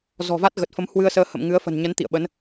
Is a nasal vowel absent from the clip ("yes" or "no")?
yes